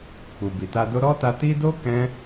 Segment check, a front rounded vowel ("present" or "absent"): absent